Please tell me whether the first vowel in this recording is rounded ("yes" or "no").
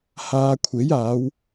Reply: no